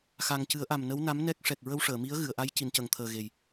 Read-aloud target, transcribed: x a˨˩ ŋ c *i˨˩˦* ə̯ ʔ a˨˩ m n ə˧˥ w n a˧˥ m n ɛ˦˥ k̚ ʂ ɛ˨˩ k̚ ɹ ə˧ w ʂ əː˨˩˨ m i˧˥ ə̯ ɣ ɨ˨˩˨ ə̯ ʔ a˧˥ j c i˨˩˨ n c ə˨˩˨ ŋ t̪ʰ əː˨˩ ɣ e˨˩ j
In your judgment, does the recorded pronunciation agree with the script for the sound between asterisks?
no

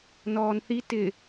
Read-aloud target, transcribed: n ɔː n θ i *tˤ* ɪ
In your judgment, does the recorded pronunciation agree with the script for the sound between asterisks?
no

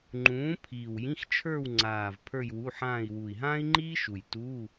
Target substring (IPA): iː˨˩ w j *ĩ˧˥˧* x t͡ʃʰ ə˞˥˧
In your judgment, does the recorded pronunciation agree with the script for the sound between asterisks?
yes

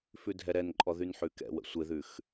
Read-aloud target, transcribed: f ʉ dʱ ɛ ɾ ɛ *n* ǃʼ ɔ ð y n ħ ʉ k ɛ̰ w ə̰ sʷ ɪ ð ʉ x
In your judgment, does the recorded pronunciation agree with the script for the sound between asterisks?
yes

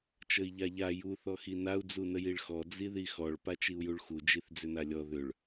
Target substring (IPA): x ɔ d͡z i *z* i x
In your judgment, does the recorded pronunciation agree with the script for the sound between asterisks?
no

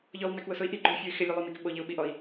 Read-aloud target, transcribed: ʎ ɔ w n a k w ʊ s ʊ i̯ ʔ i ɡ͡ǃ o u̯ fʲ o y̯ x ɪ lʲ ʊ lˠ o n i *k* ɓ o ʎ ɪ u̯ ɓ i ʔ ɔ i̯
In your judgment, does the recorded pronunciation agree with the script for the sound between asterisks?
yes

